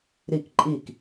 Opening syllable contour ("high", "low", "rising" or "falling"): falling